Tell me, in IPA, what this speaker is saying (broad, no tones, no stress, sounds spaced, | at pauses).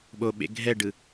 ɓ o ɓ ḛ ɡʱ ɛ ɖ ɯ